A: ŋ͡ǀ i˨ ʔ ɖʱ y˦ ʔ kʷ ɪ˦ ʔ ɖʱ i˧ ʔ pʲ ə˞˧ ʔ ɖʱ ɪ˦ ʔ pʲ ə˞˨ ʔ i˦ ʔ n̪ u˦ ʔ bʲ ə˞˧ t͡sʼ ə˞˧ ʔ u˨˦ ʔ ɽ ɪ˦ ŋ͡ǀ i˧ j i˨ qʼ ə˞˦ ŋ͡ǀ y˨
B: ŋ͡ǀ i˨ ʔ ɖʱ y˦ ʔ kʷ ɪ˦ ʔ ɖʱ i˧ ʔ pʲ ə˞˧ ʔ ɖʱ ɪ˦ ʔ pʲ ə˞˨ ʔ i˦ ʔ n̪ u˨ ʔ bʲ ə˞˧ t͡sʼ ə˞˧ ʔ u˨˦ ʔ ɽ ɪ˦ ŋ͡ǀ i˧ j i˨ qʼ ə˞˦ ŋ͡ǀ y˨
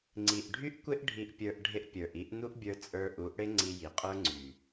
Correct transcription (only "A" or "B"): A